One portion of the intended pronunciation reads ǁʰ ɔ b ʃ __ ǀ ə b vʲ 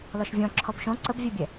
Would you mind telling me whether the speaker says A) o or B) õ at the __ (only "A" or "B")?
B